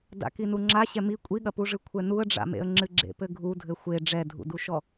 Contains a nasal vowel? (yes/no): no